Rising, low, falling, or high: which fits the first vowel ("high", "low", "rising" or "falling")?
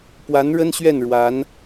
rising